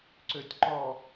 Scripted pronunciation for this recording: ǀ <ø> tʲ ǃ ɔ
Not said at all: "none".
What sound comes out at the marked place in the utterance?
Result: ø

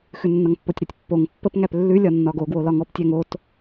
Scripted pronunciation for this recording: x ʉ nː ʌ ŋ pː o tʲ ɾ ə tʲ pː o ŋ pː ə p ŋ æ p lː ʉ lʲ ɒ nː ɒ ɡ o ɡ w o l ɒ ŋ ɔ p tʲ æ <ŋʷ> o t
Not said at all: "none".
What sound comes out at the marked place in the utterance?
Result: ŋ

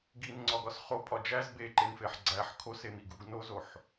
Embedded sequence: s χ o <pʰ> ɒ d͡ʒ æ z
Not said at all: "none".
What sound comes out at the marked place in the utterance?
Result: pʼ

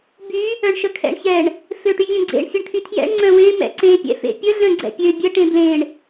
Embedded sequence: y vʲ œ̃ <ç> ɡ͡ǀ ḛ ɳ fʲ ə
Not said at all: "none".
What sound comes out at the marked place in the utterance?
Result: none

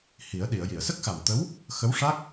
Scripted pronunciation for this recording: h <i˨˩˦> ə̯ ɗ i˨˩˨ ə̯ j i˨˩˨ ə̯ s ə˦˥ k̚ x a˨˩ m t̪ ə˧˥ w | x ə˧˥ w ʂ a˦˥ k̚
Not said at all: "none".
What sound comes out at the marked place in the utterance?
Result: i˨˩˦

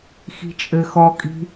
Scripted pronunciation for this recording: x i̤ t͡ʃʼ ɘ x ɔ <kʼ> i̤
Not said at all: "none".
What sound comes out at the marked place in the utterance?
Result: kʼ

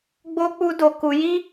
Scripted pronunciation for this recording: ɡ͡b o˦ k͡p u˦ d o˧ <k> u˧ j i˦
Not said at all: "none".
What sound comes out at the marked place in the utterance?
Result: k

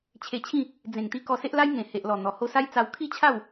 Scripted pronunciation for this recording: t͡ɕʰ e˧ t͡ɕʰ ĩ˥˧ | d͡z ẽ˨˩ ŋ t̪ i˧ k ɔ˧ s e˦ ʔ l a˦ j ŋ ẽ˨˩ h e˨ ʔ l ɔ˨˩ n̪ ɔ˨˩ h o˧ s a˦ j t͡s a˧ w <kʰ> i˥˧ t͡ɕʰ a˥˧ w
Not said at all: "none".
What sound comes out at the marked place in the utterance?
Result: kʰ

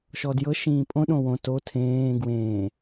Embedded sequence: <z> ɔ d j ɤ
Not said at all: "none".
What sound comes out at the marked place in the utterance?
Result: ʃ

